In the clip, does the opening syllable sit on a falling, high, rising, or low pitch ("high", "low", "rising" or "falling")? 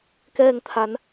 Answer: falling